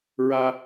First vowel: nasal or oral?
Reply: oral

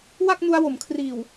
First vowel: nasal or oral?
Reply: oral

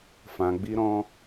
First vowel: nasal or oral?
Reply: nasal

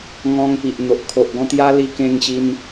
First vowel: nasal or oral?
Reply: nasal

